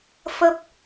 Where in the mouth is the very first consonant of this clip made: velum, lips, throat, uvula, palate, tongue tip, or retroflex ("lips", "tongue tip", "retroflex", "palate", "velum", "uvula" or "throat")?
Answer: lips